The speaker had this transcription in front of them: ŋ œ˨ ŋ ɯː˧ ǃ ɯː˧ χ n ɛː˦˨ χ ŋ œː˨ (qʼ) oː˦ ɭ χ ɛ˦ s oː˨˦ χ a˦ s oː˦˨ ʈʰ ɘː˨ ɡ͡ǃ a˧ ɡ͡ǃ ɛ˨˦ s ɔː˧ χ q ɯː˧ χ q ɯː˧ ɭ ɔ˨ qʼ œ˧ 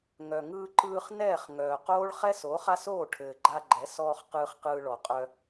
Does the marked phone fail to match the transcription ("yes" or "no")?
yes